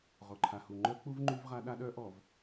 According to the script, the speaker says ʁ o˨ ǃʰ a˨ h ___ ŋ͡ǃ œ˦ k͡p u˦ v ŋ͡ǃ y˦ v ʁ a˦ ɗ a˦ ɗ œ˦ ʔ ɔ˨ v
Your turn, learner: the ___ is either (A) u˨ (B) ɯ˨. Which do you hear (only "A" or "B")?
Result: A